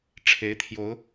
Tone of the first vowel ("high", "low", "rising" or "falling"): rising